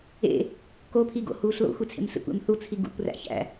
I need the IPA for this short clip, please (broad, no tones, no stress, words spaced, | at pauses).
ḛ | kopʰiɡo̰huːɬ lo̰xʷit͡sʰḛm ɬḛkʷ ḛmθut͡sʰi ɡṵkʷ ræ̰çæ̰